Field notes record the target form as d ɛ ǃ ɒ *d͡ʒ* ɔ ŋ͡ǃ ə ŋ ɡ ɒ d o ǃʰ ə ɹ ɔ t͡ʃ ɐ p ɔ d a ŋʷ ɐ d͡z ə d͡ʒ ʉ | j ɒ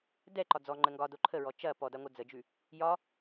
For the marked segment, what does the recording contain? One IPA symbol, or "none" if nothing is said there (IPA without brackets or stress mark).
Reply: d͡z